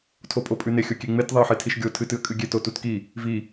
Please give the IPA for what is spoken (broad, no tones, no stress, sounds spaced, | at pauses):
tʰ o pʼ o pʼ ʉ n e xʲ o kʲ e ŋ͡m e t ðˤ e ə̯ ħ e tʰ i ʃ ɡʲ o tʰ ɨ t ɨ ə̯ kʼ ɨ ɡʲ e t o t u t k i | v i